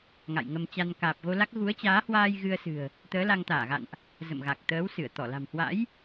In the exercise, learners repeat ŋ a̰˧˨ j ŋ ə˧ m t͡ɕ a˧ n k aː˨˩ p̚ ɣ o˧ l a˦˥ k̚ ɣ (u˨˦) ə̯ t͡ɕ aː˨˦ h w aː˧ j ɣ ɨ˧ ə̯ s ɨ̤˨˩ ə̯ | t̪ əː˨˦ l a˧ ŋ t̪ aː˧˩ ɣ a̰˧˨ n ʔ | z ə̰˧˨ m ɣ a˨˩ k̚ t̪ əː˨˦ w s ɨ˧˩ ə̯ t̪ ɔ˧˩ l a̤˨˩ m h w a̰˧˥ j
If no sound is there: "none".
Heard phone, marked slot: u˨˦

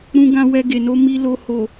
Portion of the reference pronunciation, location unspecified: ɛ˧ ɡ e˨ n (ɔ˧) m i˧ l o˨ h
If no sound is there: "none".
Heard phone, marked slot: o˧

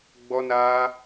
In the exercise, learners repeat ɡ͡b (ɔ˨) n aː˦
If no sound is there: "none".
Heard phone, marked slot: ɔ˦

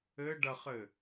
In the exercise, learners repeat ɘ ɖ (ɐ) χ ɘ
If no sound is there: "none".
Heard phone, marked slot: ɐ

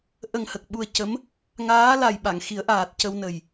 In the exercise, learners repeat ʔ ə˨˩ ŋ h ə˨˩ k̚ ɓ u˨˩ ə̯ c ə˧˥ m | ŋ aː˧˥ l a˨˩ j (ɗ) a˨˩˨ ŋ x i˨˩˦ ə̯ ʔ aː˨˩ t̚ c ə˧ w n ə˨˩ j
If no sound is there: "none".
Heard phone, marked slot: ɓ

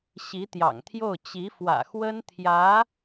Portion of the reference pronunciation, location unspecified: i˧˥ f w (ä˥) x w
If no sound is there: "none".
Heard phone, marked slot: ä̰˨˩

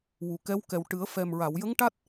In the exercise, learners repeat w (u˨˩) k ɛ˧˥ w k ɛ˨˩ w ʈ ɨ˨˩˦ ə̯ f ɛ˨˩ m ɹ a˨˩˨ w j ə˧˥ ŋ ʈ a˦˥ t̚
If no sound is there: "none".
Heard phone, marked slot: u˨˩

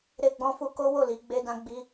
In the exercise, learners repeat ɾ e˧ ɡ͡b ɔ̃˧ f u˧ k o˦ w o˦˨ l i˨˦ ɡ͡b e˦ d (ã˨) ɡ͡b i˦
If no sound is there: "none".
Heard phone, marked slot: ã˦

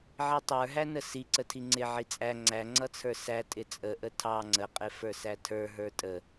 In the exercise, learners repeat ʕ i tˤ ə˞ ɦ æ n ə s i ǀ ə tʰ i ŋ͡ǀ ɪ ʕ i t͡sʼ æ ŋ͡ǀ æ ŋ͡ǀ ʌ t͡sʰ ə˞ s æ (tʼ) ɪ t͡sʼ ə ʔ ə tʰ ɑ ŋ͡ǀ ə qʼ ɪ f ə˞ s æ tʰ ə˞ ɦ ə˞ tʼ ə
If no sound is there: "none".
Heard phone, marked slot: tʼ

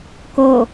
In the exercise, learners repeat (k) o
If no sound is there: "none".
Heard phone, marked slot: k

